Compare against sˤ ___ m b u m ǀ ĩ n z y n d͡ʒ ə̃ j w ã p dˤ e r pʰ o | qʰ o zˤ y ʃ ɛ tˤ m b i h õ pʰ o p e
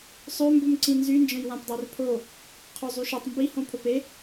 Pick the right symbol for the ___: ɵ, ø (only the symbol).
ø